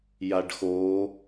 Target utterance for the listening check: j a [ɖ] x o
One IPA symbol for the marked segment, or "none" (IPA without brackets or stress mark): ɖ